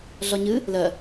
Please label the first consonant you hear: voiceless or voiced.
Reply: voiced